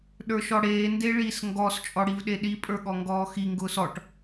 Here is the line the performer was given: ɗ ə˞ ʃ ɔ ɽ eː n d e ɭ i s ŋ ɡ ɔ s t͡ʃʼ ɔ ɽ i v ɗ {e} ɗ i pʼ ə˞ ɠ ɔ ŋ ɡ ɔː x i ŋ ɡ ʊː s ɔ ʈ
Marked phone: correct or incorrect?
correct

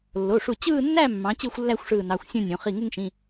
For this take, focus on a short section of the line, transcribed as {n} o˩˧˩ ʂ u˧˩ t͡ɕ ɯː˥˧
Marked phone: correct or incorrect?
incorrect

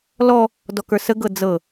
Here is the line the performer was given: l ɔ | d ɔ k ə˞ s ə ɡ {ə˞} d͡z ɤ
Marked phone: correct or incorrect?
incorrect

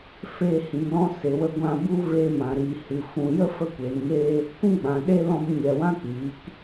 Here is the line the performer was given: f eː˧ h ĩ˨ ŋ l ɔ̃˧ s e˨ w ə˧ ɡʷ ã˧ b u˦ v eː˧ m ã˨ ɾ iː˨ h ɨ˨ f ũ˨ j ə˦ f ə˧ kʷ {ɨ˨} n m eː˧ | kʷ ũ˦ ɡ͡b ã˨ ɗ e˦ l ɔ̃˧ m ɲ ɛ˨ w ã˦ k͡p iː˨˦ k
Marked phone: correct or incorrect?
incorrect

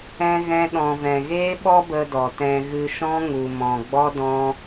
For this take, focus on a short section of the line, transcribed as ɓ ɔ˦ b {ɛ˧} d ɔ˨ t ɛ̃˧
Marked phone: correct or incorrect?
incorrect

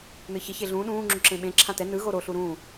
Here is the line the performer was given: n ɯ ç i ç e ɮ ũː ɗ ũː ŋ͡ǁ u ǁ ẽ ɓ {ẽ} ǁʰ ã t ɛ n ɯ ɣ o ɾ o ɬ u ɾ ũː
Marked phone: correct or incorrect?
correct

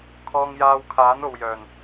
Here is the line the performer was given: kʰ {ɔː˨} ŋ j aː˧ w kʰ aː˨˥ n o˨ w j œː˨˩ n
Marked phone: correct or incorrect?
incorrect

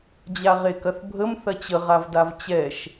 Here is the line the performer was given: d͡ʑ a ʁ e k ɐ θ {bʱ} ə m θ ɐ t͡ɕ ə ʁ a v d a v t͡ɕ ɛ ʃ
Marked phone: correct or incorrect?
correct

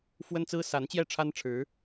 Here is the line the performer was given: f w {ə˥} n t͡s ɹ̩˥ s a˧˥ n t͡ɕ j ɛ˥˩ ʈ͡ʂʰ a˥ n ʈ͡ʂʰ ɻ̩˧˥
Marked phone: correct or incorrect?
correct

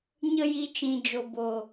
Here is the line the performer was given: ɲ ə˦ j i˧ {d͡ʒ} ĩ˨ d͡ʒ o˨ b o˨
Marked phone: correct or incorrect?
incorrect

